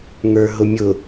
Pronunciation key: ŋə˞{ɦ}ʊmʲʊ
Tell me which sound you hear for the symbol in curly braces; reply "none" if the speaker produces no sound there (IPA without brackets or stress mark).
ɦ